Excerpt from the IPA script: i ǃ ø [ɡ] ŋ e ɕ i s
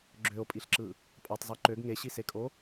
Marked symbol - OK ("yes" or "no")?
yes